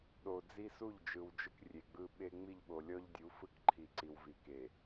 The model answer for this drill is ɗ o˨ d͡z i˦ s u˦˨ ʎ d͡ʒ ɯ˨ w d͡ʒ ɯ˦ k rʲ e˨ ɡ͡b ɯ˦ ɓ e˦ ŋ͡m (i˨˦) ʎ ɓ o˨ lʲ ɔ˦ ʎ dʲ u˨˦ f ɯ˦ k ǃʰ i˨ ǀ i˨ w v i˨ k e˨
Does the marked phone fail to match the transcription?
yes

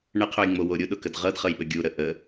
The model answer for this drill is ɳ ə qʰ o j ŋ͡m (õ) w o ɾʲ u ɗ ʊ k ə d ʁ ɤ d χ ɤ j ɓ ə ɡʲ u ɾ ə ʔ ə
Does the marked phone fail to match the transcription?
yes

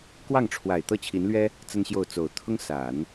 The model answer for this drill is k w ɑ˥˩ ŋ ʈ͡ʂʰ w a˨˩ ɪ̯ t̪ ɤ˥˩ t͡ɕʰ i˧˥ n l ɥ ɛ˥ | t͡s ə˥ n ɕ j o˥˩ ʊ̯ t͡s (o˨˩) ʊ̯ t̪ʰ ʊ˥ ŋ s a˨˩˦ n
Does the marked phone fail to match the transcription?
no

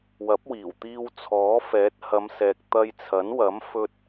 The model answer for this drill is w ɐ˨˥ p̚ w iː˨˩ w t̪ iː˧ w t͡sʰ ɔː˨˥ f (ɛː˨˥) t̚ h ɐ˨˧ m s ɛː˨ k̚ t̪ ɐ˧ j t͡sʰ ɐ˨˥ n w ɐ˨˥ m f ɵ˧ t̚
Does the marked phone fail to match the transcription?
no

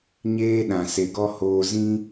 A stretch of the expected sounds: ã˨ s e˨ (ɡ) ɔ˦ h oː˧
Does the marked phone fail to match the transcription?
no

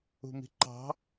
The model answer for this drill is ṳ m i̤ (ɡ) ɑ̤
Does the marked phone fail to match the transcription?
yes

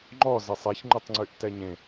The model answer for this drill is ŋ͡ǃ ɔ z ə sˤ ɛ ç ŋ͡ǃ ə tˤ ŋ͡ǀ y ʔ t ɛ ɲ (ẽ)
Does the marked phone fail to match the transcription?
no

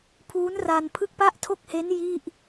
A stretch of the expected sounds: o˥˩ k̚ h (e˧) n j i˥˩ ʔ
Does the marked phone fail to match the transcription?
yes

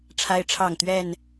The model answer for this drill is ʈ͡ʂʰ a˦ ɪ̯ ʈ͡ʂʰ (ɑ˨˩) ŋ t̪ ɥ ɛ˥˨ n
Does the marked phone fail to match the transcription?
yes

